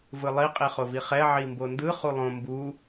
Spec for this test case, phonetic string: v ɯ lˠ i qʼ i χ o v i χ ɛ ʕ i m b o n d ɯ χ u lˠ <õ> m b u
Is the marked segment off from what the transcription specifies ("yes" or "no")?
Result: no